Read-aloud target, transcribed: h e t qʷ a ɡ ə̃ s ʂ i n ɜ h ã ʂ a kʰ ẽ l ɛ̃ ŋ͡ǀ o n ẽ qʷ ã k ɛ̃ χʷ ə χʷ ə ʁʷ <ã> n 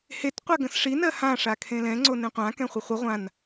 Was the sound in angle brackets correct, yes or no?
yes